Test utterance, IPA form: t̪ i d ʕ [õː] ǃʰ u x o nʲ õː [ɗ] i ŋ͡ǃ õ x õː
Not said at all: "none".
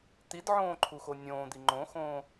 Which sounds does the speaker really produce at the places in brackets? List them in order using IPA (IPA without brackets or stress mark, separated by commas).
õː, d̪